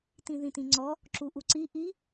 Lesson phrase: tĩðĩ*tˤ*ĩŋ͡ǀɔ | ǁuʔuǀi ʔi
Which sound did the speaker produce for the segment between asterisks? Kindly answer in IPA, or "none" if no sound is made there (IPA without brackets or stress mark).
t